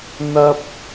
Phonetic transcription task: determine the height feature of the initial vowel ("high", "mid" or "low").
low